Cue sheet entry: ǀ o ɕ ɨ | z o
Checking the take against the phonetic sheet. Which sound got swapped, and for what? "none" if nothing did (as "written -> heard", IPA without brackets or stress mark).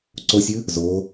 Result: ɕ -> sʲ